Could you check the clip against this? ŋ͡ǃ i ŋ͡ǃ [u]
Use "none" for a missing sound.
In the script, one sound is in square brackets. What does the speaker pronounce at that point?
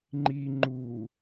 u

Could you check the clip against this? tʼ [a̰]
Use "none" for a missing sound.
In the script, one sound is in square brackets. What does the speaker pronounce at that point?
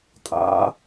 a̰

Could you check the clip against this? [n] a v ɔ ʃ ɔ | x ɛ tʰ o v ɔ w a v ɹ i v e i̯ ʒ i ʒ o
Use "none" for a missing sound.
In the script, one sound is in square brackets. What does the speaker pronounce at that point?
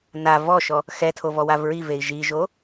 n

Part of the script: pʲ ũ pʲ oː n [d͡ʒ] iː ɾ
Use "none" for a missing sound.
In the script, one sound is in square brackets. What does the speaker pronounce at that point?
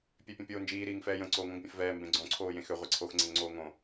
d͡ʒ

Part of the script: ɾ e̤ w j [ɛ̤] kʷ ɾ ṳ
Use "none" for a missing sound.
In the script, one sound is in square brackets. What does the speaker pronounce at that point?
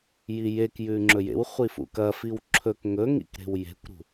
e̤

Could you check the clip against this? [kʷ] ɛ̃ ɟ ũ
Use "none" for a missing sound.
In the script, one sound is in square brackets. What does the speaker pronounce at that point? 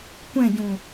kʷ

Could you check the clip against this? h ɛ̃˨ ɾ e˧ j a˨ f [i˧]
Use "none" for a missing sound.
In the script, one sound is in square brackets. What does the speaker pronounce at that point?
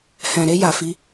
i˧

